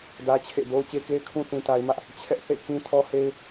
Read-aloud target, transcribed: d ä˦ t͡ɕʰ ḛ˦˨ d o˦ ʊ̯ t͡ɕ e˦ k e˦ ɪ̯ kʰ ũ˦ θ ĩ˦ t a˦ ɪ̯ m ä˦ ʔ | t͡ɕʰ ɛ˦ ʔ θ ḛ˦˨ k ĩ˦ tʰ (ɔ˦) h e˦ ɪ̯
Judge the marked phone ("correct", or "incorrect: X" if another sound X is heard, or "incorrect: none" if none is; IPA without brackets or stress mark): correct